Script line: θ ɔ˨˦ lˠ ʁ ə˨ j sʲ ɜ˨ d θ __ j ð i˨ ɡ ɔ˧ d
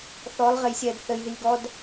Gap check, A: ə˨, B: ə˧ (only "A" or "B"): A